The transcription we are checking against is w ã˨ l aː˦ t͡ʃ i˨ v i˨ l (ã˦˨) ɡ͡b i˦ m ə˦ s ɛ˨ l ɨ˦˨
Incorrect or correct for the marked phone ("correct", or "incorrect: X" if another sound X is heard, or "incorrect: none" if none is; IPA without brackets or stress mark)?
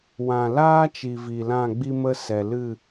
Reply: correct